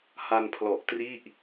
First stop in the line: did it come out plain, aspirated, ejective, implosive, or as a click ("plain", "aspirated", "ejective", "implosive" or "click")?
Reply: aspirated